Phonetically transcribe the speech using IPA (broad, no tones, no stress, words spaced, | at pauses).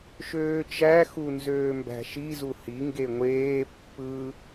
ʃøːt͡ʃæ xunzøːmbæ̤ʃi zuhi ŋɡeŋʷeː pːɯ